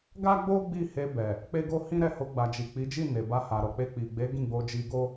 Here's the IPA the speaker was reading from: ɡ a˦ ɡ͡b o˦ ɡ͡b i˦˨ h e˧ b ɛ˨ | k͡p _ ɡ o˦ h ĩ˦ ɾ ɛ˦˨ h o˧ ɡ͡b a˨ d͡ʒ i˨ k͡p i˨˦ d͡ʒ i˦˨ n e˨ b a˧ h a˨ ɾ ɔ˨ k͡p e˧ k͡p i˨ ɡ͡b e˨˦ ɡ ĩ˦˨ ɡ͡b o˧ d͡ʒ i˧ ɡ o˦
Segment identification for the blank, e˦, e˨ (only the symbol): e˦